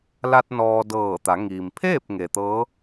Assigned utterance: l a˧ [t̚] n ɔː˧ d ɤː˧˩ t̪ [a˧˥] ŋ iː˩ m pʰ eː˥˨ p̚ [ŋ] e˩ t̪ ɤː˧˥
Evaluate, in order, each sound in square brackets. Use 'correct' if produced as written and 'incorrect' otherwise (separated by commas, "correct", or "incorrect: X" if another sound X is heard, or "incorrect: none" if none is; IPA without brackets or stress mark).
correct, incorrect: a˩˧, correct